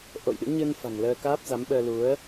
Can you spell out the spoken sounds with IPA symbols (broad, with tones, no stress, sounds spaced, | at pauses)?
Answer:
ʔ o̰˧˨ j ɗ ɨ̰˧˥ ɲ ɨ˧ n f a̤˨˩ ŋ l əː˧ k aː˦˥ p̚ z a˨˦ m ɓ əː˧ l u˨˦ ə̯